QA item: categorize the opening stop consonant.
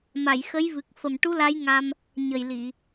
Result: plain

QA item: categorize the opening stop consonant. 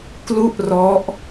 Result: plain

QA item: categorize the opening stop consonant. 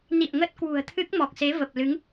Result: plain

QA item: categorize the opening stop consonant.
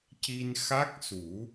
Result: plain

